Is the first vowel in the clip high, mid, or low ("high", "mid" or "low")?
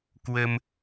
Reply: mid